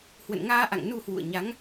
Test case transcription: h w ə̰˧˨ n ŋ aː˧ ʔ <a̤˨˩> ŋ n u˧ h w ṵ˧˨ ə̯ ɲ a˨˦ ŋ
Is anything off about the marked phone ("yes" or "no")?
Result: yes